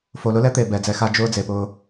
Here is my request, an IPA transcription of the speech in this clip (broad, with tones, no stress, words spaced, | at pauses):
fo˨lʊ˦lɛ˦t̪e˨ bɛ˨˦d͡zɛ˨˦xa˦ d͡ʒʊː˦d͡ze˨pʊː˦